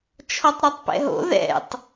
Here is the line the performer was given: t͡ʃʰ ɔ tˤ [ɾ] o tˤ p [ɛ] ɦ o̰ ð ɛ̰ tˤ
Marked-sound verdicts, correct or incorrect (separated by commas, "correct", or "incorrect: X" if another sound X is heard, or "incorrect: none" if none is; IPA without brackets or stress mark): correct, incorrect: ɛ̰